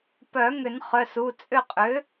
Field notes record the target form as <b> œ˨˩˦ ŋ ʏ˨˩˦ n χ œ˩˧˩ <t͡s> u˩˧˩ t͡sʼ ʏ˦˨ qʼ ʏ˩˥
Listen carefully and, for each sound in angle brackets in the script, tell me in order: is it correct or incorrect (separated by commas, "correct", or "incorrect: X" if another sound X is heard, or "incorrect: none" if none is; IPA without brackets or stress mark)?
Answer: incorrect: p, incorrect: s